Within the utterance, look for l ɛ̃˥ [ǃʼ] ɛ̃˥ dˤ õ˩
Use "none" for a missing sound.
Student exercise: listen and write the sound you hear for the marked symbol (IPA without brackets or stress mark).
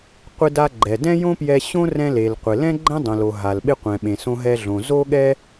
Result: ɡ͡ǃ